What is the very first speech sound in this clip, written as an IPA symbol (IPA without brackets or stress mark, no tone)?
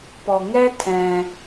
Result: p